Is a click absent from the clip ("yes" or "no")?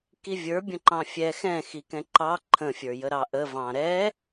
no